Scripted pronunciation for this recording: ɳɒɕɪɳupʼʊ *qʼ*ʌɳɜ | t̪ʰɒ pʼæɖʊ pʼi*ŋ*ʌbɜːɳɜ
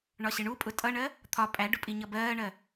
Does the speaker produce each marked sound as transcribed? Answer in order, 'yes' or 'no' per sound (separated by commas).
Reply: no, no